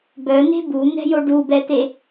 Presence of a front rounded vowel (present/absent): present